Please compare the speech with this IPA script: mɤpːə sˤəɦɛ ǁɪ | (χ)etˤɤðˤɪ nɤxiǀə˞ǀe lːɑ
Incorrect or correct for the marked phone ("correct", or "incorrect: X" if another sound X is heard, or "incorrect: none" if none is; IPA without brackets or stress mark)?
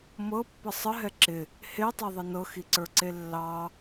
incorrect: h